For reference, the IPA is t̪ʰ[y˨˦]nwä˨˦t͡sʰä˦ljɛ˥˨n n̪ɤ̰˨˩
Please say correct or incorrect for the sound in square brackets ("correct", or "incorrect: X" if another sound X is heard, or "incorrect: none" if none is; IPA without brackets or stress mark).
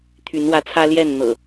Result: correct